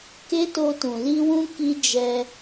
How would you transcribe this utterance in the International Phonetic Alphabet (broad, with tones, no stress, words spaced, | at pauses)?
ke˦to˧tũ˨ li˧wũ˧ ki˦ d͡ʒɛ˧